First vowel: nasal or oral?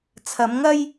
oral